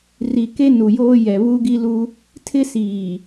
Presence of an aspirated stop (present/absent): present